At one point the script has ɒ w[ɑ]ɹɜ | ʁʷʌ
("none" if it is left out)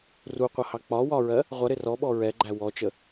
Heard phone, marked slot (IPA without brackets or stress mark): ɒ